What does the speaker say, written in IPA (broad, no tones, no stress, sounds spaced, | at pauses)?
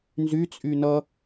n z y t͡sʼ y n ʌ